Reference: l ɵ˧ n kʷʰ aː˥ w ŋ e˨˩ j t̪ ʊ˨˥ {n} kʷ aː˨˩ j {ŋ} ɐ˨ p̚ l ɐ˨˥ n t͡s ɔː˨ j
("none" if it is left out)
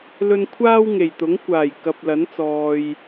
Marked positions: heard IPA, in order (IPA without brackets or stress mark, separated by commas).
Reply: ŋ, k